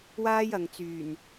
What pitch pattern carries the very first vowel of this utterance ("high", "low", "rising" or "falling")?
high